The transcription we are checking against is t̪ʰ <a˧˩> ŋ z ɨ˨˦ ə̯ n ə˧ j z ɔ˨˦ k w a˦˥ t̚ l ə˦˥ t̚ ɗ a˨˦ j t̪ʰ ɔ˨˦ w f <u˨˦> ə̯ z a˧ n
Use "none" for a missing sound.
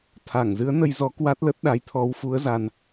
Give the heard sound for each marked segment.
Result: a˧˩, u˨˦

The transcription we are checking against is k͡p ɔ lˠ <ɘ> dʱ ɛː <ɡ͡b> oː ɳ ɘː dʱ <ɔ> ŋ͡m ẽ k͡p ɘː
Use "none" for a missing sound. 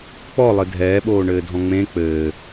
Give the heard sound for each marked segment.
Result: ɘ, ɓ, ɔ̃

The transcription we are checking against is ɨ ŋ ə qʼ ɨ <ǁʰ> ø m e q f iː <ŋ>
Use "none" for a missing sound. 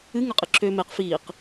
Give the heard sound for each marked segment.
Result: ǁʰ, q

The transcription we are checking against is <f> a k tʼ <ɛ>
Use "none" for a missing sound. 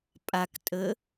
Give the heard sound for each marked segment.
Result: pʼ, ə

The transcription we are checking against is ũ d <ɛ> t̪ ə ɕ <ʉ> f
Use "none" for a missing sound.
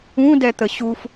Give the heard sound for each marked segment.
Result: ɛ, u

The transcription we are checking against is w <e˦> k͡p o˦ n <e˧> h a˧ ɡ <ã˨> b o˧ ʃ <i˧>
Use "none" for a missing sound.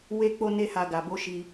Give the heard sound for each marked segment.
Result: e˦, e˦, a˨, i˧

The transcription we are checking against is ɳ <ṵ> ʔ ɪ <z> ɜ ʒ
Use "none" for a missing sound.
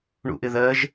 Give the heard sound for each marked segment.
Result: ṵ, ð

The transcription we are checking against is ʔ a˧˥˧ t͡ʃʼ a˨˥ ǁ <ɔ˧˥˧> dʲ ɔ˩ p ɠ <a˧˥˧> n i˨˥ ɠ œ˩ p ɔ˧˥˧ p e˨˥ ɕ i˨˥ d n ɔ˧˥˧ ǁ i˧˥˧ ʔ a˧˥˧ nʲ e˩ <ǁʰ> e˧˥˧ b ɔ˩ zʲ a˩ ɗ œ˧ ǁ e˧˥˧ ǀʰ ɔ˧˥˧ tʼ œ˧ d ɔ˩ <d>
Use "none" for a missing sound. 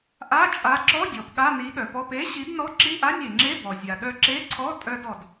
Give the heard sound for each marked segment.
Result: ɔ˧˥˧, a˧˥˧, ŋ͡ǁ, d

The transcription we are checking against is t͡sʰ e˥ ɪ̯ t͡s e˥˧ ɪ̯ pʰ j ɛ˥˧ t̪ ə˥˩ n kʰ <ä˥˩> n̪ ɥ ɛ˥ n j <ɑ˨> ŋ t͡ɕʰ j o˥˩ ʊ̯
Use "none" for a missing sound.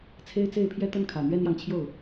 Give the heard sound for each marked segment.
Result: ä˨˩, ɑ˨

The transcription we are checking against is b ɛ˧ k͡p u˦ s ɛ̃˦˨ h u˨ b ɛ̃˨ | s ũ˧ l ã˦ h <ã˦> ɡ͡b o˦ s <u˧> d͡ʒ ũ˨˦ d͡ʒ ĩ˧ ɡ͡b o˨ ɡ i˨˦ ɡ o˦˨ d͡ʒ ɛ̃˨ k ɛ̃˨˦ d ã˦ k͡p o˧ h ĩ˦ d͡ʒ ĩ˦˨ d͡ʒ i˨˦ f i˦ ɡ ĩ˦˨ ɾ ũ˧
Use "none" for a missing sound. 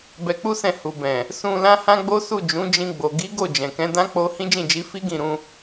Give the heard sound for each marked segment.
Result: ã˦, u˦˨

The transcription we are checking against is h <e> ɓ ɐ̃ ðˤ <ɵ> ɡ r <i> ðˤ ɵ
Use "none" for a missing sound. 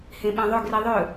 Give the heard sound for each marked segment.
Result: ẽ, ɵ, i

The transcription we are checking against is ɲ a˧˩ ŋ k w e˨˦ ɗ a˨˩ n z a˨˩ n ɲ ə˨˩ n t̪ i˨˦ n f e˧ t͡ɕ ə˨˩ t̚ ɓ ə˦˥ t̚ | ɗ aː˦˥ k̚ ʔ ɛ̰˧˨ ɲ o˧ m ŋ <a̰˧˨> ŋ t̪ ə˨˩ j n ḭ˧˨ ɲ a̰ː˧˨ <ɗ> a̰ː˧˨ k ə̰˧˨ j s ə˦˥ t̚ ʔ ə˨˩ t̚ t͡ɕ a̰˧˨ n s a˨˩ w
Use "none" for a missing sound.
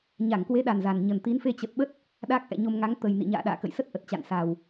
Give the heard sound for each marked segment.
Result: a˨˦, ɗ

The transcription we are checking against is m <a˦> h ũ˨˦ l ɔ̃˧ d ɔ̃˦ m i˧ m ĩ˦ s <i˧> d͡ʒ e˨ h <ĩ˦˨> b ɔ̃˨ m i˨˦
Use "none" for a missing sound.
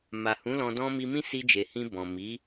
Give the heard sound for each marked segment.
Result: a˨, i˧, ĩ˧

